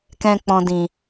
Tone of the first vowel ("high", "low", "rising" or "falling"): low